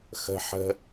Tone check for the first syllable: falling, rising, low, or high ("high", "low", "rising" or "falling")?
high